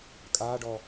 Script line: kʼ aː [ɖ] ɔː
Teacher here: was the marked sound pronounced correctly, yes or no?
yes